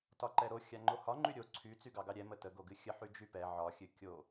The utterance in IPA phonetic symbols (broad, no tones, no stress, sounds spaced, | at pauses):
t ɒ ǃ ɛ ɾ o xʲ a ŋ͡ǃ o h ɒ ŋ͡ǃ y ɾʲ o ǀʰ y t͡s y ɡ ɑ ɡ ɑ ɾʲ ɛ m ə t ə ɡ o ɡ ɨ xʲ ə ħ y d͡ʒ y p ɛ ʕ ɒ xʲ ɨ kʲ o